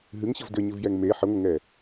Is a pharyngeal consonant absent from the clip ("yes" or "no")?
no